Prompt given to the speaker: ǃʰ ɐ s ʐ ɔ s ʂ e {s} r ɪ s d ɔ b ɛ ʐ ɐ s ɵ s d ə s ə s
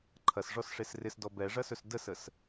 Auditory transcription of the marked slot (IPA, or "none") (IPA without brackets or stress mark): s